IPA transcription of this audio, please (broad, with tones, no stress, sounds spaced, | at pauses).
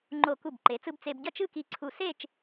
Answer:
ŋ͡ǃ o˧˩ k u˧˩ b ǃ e˩˧ t͡s ɯ˧ b t͡s e˧ b ɟ ʌ˥˧ t͡ʃ ɯ˥˧ k i˧ ǀʰ u˧˩ s e˥˧ t͡ʃ